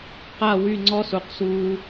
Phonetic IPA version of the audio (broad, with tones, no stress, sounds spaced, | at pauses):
q a˦˨ w y˦˨ ŋ͡ǀ ɔ˦ s u˨ q s u˦